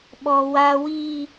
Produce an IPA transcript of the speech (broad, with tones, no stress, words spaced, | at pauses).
ɓɔ˨ wa˨wi˨